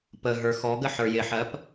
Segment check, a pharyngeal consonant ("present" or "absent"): present